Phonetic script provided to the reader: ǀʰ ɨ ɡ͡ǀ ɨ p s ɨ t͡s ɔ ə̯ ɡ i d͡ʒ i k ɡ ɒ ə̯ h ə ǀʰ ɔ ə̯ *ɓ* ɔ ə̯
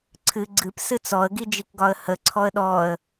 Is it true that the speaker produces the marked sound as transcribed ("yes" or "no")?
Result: no